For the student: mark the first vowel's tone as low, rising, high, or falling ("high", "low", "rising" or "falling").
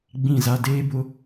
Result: falling